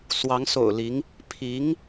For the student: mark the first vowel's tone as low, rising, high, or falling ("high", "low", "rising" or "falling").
rising